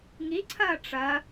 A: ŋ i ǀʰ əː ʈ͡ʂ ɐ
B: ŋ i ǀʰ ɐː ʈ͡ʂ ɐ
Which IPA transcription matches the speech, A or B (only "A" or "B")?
B